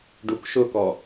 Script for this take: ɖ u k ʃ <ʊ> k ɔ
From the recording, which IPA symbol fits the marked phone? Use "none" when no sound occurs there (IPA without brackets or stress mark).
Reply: ʊ